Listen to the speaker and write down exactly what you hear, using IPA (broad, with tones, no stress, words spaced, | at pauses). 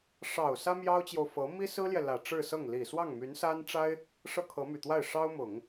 ʂɑ˨˩ʊ̯ sä˥mjɑ˥ʊ̯t͡ɕjo˨ʊ̯ fɤ˧˥ mi˥sɹ̩˥ljɛ˨ lä˨˩ʈ͡ʂɻ̩˥˧sɤ˥˩ŋ li˨˩ swɑ˥˩ŋmy˧˥nsa˥nʈ͡ʂa˥ɪ̯ | ʂɤ˥˩kʰɤ˧˥my˨˩t̪wa˥˩ɪ̯ ʂɑ˥ʊ̯ mʊ˨˩˦ŋ